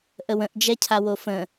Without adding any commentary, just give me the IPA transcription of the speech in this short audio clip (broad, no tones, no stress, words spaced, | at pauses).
ʔəwə̃ʔ d͡ʒɛcʰawofə̃